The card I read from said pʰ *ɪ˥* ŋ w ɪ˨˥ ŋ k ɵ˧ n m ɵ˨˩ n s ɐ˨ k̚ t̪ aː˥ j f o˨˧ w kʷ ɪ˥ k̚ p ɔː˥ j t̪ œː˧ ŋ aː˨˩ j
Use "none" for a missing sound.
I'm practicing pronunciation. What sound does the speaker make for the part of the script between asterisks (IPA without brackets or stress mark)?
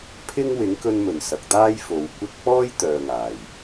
ɪ˥